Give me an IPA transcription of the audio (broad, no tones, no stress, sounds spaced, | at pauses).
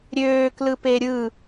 ɾʲ øː k l ɯ p e ɾʲ ɯ